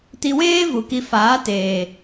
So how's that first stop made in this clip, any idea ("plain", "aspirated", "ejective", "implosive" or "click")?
plain